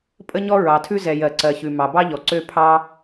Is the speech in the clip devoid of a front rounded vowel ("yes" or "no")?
no